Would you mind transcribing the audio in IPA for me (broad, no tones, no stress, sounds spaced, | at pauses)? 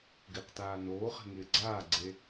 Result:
ɡ ɪː q t aː n oː χ e̤ ŋ ɪː ɡ͡ǀ aː ɡ͡ǀ e